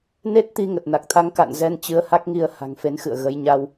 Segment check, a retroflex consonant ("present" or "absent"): absent